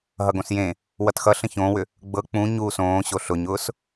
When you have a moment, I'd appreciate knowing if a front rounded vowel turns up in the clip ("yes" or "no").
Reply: yes